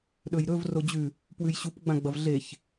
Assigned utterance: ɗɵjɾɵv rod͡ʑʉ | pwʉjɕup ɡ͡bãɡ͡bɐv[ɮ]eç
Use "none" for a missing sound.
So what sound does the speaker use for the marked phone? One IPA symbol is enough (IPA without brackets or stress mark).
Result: ɮ